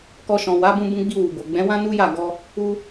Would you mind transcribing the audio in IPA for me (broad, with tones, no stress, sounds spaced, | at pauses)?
k ɔ˧ ʃ ɔ̃˨ w a˨˦ b ũ˧ b ũ˧ ɡ͡b i˧ w u˨ b o˨ ɡ͡b ɛ̃˨˦ w ã˦ n u˦ j a˦˨ ɡ ɔ˧ | u˧